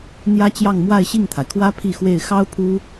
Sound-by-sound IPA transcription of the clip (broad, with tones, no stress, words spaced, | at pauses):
n̪jä˥t͡ɕjɑ˥˧ŋ mwa˥˧ɪ̯ɕi˥˩ŋt̪ʰa˩ɪ̯kʰwä˥ pʰi˥˧xwe˥˩ɪ̯ xɑ˥ʊ̯ pʰu˥